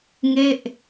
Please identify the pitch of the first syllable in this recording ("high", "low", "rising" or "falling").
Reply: falling